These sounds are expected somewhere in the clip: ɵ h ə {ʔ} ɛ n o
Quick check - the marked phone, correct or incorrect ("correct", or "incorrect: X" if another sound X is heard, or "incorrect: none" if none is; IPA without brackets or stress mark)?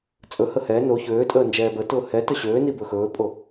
incorrect: h